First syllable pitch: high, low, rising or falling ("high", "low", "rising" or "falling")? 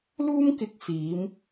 high